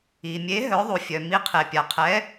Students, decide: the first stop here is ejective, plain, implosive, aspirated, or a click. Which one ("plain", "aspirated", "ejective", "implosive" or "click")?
aspirated